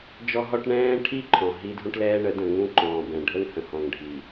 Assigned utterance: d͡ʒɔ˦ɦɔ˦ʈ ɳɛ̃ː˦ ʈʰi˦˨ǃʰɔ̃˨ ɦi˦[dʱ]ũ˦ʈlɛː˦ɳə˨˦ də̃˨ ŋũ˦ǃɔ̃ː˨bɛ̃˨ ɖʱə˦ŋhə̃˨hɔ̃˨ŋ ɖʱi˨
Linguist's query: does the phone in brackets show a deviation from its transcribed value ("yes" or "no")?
no